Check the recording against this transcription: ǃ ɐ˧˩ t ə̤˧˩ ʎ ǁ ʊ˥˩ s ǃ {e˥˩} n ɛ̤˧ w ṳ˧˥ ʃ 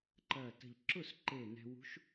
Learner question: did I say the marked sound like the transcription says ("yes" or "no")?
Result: no